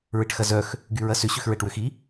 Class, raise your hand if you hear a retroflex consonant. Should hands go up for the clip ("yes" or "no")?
yes